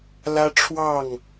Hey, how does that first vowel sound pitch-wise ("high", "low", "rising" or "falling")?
high